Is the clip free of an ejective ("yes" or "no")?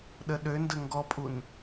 no